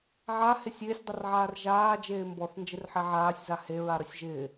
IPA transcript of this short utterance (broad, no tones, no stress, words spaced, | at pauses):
ʕahɪsʲ ɪːsʲdˤərʕaːr ʒaː d͡ʒeːmbɔθ nd͡ʒɪrħeʕaːsʲza heɹa ɾəsʲʒɪː